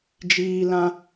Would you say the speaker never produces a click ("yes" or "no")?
yes